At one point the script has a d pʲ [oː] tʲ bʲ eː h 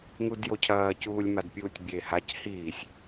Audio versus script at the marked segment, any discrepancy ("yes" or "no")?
yes